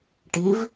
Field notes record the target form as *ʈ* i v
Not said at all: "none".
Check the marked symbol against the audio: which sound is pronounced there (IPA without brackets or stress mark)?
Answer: ʈ